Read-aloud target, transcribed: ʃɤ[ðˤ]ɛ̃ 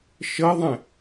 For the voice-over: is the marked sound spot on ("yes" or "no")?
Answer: yes